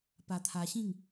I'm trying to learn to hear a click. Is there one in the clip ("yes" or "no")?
no